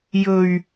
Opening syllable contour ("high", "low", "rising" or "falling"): low